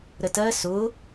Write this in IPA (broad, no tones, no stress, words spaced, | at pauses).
ɾətɜ sʊ